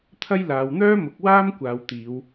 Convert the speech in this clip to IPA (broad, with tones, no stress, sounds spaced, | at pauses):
t̪ʰ ɐ˥ j l aː˨˧ w n̪ œː˥ m ʊ˨˥ k̚ w aː˥ m kʷ aː˨˧ w t̪ iː˨˧ w